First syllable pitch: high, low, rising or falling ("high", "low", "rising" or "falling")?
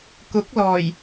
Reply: rising